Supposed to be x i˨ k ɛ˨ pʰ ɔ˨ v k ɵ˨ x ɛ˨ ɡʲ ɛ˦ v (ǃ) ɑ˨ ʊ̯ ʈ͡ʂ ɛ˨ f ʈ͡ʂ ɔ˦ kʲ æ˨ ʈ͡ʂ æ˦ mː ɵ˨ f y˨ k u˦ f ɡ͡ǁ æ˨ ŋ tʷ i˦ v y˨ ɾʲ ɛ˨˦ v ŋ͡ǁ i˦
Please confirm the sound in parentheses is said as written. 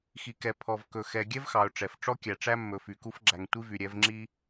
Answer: no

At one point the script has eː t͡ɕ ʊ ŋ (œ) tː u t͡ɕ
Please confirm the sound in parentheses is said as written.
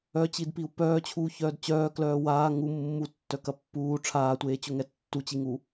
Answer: no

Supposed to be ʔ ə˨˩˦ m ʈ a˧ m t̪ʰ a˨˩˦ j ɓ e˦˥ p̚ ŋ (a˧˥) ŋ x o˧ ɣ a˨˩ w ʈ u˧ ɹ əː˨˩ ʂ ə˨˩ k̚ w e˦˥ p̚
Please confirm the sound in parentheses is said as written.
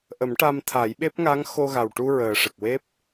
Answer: yes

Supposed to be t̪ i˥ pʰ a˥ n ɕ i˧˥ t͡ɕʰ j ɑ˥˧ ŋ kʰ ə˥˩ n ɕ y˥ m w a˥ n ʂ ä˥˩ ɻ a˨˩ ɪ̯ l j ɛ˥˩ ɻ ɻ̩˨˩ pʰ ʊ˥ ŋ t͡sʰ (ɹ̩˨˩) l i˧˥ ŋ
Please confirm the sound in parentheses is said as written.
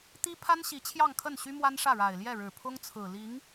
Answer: yes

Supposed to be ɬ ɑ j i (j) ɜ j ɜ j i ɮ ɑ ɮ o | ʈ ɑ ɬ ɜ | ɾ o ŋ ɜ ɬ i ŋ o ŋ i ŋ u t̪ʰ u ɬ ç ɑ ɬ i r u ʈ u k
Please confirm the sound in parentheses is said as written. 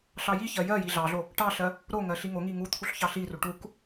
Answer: no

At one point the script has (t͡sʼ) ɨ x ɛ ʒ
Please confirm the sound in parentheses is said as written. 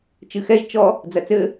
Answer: no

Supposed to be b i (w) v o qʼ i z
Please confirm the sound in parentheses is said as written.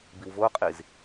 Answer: yes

